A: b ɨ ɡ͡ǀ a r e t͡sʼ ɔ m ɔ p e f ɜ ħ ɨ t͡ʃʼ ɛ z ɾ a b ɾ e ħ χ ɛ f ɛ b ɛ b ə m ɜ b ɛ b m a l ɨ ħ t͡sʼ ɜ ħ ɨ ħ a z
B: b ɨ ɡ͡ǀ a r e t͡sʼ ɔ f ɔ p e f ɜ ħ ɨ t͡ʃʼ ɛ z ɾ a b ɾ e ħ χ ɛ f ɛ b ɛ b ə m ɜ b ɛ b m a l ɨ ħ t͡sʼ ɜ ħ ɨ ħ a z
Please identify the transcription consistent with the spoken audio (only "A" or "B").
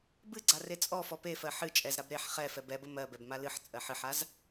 B